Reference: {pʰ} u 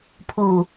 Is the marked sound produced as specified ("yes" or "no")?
yes